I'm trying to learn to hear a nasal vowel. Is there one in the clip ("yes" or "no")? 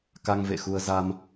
no